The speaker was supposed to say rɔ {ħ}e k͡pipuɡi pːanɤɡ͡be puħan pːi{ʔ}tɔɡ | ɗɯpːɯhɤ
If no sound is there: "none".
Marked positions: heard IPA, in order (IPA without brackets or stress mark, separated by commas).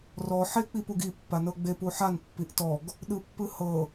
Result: ħ, ʔ